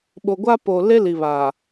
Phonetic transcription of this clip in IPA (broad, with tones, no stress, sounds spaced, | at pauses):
ɓ o˨ ɡʷ a˦ p o˨ l e˦ l i˨ β a˨